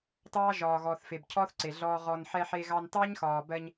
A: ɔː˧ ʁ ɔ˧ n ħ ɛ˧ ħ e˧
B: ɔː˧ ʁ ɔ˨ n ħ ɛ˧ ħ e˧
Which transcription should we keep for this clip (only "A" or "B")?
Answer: A